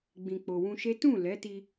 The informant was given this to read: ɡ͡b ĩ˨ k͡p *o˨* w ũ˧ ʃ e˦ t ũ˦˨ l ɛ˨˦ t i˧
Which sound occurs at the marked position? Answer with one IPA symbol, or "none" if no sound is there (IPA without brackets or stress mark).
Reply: o˨